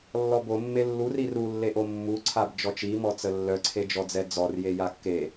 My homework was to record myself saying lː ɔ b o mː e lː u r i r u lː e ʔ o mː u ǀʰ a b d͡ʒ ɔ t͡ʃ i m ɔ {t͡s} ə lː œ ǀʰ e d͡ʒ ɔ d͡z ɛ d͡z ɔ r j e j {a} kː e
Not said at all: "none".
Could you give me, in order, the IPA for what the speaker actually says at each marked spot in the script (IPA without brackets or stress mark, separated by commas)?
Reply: t͡s, a